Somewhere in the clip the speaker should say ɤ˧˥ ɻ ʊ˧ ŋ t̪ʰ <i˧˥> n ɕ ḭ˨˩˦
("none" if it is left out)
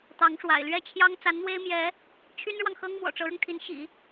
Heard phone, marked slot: i˧˥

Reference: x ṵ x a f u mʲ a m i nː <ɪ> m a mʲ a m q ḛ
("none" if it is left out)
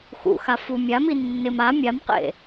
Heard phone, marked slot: ɪ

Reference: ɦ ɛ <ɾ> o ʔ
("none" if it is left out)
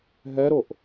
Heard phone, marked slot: ɾ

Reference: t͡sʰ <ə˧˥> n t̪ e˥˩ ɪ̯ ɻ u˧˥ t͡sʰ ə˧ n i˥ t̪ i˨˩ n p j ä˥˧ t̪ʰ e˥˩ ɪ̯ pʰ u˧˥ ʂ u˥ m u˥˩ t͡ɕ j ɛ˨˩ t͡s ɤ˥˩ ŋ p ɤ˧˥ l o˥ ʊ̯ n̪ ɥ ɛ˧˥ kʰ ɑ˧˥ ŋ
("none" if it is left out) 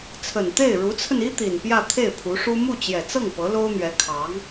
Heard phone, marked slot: ə˨˩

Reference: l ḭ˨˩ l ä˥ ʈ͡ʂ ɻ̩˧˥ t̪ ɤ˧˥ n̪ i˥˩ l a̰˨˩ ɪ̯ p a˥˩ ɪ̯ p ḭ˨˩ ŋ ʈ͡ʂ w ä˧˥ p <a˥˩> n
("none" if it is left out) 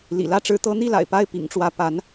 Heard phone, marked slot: a˧˥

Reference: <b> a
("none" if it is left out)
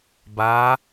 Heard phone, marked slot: b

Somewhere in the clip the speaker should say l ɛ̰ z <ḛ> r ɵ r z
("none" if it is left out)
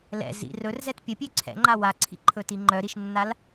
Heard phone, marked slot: ḭ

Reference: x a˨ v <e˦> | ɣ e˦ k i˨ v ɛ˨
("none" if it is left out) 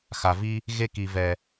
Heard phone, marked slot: i˦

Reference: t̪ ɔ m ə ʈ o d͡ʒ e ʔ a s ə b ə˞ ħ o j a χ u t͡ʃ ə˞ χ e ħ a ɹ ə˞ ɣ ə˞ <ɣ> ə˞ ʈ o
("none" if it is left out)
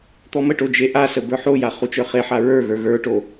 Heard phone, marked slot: ɣ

